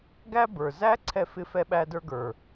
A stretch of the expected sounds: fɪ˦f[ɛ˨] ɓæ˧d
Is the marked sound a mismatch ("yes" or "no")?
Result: yes